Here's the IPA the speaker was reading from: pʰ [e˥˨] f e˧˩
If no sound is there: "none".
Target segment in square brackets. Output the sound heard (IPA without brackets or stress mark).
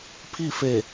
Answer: i˥˨